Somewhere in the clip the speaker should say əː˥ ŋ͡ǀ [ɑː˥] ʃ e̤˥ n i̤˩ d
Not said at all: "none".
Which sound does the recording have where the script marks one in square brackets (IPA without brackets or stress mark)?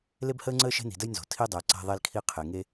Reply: əː˥